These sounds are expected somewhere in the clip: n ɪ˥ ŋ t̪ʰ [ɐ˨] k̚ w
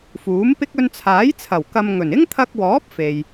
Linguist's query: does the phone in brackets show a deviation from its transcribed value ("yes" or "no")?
yes